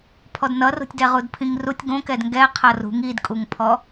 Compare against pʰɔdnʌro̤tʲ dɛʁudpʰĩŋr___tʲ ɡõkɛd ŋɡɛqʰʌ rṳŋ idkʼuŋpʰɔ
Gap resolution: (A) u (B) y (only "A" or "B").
A